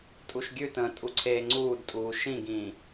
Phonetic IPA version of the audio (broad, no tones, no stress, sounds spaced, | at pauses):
tʼ u ʃ ɡʲ ʉ t ə̃ː tʼ u ǀʰ eː ŋ͡ǀ uː d tʼ uː ʃ ĩ ɡ ĩː